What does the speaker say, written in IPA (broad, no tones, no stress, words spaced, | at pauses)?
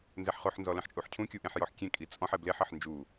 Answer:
nzɛħχoħnzɔ lɛ̃ħt͡ʃʼuħcʰũkʲu ʔẽħjɔħkʲẽkʼi t͡sʼɔ̃ħɛ bleħɐħ nd͡ʒu